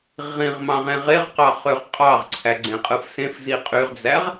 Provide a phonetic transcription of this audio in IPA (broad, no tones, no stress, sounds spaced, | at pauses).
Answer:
ʁ ĩ ʁ m ɑ̃ ʁ ẽ ʁ e ʁ q ɑ χ ø ʁ qʼ ɑ ʁ ǀʰ æ ɡ͡ǀ ẽ qʼ ɯ f s ẽ f z i qʼ y ʁ d͡z æ ʁ